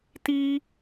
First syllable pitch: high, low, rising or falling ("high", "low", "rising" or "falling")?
high